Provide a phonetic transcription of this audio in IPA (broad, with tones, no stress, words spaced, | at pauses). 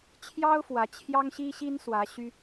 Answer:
t͡ɕʰjɑ˥ʊ̯ fwä˧˥ t͡ɕʰjɑ˥ŋɕi˥ɕi˥n swä˧˥ɕy˥